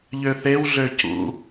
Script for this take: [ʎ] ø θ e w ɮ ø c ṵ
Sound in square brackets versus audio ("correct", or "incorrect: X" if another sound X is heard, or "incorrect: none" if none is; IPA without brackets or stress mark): correct